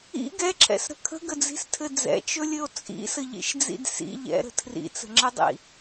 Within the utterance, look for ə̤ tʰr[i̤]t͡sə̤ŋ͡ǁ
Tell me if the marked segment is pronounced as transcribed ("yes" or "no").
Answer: no